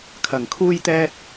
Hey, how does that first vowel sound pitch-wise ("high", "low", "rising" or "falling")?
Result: low